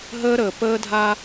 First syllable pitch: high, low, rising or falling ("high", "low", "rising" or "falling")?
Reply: high